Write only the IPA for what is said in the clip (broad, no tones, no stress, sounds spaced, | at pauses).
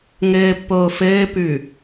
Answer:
ŋ ɘː pː oː f ɘː p ʉ